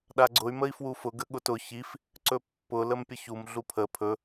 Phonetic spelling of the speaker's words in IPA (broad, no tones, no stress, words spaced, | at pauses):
ɗaɡ͡ǀʊy̯ məi̯fwufʊ ɡəɠʊtʊ çif | ǀɵpːʊ ləmpʲəçum ɮupʰə pʰɵ